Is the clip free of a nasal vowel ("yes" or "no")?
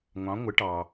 no